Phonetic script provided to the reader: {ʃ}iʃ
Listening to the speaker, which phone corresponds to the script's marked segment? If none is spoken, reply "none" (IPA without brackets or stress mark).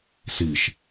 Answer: s